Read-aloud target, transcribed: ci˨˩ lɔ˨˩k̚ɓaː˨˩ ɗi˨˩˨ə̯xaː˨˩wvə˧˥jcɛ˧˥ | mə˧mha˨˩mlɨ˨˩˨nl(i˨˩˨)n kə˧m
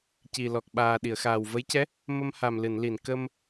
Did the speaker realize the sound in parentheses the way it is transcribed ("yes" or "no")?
yes